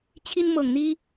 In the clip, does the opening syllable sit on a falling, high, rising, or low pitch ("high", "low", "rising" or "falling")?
high